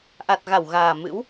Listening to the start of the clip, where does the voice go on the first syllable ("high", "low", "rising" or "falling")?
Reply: low